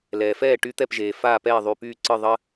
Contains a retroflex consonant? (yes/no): yes